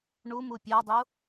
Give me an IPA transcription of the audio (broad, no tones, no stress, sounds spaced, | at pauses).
ɳ u m u pʲ ɒ dˤ u